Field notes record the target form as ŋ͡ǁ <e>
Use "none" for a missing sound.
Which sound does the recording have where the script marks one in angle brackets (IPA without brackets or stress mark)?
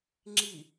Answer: i